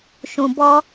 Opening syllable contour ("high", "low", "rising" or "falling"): low